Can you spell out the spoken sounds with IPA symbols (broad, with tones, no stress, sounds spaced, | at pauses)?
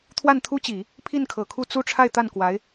t̪ʰ w a˥˩ n t̪ʰ u˥ t͡ɕ i˨˩˦ | pʰ i˥˩ n kʰ ɤ˨˩ kʰ u˥˧ t͡s u˥˧ ʈ͡ʂʰ a˥˧ ɪ̯ t̪ a˥˩ n k w a˧˥ ɪ̯